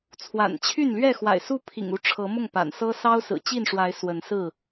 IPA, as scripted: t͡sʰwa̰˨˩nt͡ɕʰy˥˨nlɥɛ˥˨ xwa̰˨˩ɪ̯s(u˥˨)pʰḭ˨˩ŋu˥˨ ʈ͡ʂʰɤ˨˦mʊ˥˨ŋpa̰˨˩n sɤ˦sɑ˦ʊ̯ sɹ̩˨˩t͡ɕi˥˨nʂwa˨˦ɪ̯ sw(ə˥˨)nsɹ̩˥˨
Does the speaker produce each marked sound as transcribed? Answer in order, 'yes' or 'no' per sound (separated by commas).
yes, no